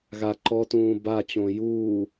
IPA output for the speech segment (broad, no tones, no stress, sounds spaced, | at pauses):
ɣ a ǃ ɔ t ũː b a t͡ɕ õ j uː